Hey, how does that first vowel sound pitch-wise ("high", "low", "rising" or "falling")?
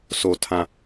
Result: low